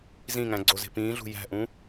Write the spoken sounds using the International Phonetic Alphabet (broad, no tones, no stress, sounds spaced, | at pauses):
z ĩ ŋ æ̃ ɡ͡ǀ o z e̤ p ĩː ɮ ṳ j æ̤ ʔ ũ